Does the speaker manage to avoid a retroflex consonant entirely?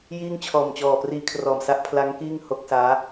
yes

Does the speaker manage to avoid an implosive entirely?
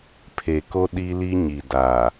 no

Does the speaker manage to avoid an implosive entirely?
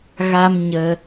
yes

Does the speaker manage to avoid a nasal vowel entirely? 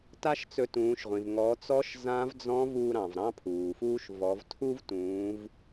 no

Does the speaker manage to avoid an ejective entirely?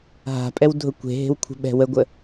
no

